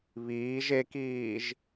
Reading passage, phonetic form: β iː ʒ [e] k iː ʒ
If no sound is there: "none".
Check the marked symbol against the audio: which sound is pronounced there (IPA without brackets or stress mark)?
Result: e